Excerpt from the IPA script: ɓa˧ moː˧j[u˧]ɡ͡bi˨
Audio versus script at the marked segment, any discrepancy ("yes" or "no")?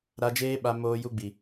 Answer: no